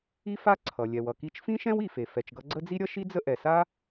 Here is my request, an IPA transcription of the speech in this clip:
i˥ f a˥ ǀʰ ʌ˩ lʲ ɛ˩ w ʌ˩ k i˥ t͡ʃ f ĩ˥ ʃ ɛ̃˥ w i˩ f e˩ f ɛ˩ t͡ʃ ɡ ʌ˥ ɡ͡ǀ ə˥ d͡z i˥ ɾʲ ʌ˥ ʃ i˥ d͡z ə˥ ʔ ɛ˩ s a˥

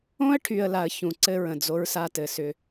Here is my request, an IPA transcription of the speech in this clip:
õ˦ ə̯ ʈʰ y˨ ə̯ l a˨ ə̯ ç ũ˨ ǀ ɘ˦ ɹ ə̃˨ d͡z o˦ ɹ s a˦ t ɘ˨ s ʏ˦

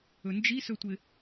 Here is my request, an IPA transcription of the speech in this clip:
ɵ n d͡ʒ i s ɵ tʷ ɪ

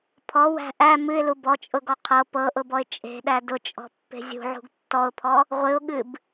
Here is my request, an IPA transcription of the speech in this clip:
pʰ ɔ w æ̤ ʔ æ m ɨ ɪ̯ l u b ɔ t͡ʃʼ ʊ ɡ ɔ qʰ ɤ p ɤ ʔ ʊ b ɔ ɪ̯ t͡ʃʼ e̤ ɗ æ d ʊ t͡ʃʼ ɔ̤ pː e̤ zʲ ṳ ʕ ṳ ɡ tː ɔ ʊ̯ pʰ ɔ | ʁʷ ɨ ʊ̯ ɠ ɨ b

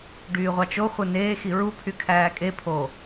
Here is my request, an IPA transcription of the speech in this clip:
ɖ yː ʁʷ ɑ t͡ʃ o χʷ ɯ n eː x i ɹ u pʰ y kʰ æː kʼ e pʰ o

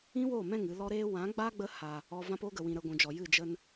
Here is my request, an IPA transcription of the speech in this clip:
ĩ˦ w oː˦˨ m ɛ̃˦˨ ŋ ɨ˧ l ɔ˦ ɾ eː˦ w ã˨˦ ɡ͡b a˦ ɡ͡b ə˧ h a˨ | ɔ˧ v ã˦ p oː˦ ɡ ə˨ w ĩ˨ ɾ ə˧ ɡʷ ũ˨ d͡ʒ ɔ˨ j ɨ˦˨ d͡ʒ ə˧ n

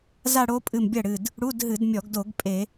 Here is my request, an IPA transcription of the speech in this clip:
z a˥˧ ɽ o˦˥ pʼ ɨ˧˩ m bʲ ɐ˥˩ ɽ ɨ˧˩ d | ɽ u˧˥˧ d ɦ ɨ˧˩˧ d mʲ ɔ˧˩˧ ɡ d o˧˩˧ ɡ pʼ e˧˩˧

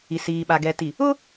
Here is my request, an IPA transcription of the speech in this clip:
i˨ s iː˨ ɓ a˨ ɡ ɛ˨ t i˨ | ʊ˦

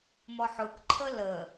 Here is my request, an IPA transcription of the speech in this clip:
m ɔ ħ ʊ k ǃʰ ə l ə

